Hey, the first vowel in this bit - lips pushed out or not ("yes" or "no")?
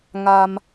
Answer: no